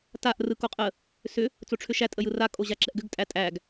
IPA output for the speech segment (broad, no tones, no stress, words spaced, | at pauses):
taʔ rɯkoqʼə | sʏ | t͡soʈ͡ʂʰʏʃæ tʼəjɯra kʼoʑaǁɛʔɡʏɡ tʼætʼæɡ